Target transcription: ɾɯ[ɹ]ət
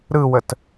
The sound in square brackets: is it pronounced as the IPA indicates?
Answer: no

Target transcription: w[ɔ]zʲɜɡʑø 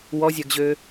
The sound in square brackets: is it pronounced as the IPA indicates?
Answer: yes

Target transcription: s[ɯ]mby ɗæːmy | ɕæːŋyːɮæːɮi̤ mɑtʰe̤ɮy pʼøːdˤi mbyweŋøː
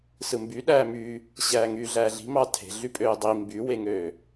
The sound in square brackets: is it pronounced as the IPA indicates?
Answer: yes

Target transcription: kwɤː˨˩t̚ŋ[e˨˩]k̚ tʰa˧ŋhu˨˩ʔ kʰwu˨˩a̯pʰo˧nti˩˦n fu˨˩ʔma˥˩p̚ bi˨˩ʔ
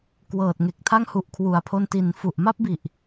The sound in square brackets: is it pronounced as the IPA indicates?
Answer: yes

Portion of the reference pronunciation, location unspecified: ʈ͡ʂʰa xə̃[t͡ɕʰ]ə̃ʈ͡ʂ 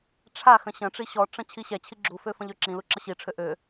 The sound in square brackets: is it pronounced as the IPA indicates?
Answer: no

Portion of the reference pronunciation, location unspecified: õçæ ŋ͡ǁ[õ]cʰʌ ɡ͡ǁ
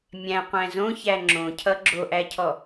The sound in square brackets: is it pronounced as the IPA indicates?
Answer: yes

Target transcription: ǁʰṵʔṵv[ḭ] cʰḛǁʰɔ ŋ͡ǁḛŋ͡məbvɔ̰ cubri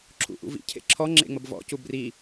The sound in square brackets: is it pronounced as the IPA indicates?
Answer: yes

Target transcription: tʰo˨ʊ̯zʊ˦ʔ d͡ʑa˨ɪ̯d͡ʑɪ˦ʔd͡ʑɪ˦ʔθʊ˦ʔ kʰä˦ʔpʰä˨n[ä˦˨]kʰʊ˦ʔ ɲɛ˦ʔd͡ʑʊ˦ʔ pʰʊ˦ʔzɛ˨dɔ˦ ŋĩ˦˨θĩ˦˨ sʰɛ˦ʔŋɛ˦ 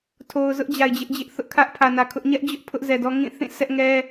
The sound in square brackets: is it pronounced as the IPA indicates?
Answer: no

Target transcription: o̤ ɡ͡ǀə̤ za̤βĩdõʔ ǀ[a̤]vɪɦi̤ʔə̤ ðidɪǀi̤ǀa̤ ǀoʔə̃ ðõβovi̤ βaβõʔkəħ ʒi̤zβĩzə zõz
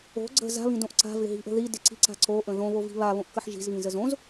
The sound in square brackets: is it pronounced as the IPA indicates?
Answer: yes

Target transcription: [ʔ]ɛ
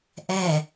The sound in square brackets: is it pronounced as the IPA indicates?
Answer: yes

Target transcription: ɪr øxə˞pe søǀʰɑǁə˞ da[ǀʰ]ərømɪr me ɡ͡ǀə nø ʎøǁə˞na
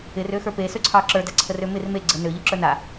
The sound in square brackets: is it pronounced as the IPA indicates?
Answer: yes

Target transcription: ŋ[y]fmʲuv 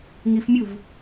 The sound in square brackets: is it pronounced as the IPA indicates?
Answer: no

